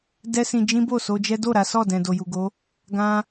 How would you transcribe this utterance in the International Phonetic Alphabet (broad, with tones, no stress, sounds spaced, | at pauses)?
d ɛ˦ s ĩ˧ d͡ʒ ĩ˦ b o˦˨ s o˧ d͡ʒ ɛ˦ d o˦˨ ɾ a˨˦ s ɔ˦˨ d ɛ̃˨ d o˨ j u˨ ɡ o˨˦ | ɡ ã˦